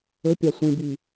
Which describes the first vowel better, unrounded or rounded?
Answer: rounded